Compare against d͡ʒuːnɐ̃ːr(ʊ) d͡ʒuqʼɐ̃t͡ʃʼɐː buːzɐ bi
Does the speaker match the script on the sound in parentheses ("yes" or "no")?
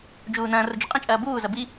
yes